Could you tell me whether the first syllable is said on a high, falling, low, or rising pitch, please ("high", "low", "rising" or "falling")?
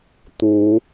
rising